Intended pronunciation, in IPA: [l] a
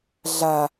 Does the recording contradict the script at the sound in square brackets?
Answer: yes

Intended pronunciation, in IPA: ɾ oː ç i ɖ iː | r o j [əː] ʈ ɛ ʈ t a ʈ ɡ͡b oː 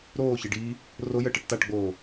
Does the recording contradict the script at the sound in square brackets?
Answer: no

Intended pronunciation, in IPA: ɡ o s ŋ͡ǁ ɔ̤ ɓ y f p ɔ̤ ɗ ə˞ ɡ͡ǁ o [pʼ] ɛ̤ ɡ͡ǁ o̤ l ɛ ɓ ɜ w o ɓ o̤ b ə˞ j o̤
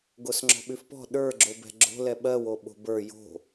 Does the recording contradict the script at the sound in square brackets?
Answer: yes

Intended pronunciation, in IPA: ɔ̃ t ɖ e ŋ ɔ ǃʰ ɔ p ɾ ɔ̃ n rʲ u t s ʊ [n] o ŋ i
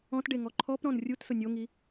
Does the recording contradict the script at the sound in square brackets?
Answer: yes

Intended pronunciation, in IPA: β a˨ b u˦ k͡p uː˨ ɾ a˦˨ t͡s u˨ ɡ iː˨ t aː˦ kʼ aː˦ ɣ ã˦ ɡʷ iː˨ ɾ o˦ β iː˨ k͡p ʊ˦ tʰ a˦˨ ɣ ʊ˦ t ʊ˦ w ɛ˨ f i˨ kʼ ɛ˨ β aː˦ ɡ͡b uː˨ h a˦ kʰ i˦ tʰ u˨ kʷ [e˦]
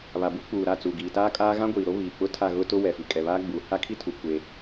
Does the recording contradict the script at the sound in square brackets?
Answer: no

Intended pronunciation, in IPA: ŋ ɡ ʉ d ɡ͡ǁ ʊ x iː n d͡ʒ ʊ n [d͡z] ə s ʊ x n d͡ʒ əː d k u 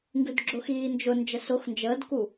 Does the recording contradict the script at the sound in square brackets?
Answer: yes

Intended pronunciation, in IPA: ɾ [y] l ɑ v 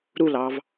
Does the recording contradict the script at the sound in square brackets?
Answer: yes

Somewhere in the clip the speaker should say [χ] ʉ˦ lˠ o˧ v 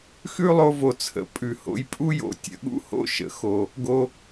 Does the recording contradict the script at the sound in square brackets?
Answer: yes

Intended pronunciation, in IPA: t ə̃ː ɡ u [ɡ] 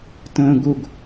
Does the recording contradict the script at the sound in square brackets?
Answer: no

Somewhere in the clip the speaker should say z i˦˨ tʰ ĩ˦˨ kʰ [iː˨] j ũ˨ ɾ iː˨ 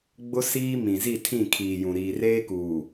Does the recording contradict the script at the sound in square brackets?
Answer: no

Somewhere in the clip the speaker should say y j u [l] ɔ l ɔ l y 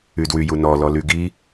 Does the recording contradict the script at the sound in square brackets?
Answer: yes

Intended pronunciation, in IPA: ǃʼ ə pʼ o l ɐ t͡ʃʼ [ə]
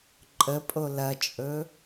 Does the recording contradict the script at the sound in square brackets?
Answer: yes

